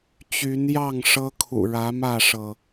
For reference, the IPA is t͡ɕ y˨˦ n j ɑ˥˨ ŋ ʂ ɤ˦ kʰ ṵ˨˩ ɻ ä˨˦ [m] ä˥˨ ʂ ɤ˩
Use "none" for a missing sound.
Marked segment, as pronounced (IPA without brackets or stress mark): m